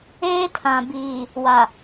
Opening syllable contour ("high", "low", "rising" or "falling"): high